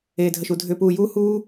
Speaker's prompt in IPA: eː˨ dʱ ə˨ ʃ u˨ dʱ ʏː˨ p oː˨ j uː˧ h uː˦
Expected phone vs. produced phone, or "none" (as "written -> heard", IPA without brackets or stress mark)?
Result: oː˨ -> uː˨